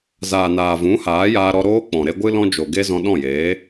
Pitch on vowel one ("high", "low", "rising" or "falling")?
low